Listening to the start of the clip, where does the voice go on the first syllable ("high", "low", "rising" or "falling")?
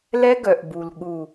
high